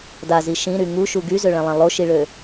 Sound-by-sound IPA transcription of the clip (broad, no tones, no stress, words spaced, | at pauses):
dazi ʃĩɾy ŋuʃu ɡyzøɭɛ̃lˠɛ̃ lˠoʃiɭø